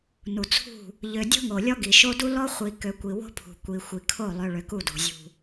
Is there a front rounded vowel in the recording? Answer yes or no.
yes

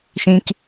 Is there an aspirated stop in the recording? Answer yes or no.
no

